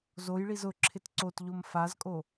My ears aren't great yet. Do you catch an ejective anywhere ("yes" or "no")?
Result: yes